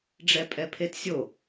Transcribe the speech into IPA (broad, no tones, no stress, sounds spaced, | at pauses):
ɖ͡ʐ ɛ pʼ ɛ pʰ e t sʲ o